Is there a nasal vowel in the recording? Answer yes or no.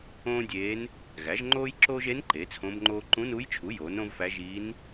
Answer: yes